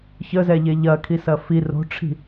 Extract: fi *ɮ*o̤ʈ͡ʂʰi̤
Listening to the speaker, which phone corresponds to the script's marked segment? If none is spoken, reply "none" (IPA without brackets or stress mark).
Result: r